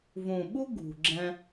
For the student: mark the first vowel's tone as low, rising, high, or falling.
low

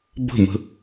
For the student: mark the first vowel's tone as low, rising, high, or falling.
falling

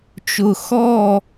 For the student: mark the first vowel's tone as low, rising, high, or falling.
low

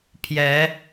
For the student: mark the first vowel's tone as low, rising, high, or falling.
rising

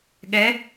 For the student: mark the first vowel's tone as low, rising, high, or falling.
rising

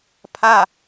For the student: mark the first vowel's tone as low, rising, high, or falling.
falling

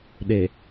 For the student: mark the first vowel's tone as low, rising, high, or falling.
low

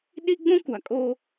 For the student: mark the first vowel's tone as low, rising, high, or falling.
high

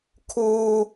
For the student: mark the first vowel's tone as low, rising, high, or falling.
high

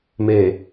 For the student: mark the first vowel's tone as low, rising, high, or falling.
low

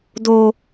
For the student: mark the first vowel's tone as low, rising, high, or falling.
high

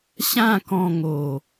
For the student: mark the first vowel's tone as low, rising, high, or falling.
falling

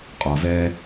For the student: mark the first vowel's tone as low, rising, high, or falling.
low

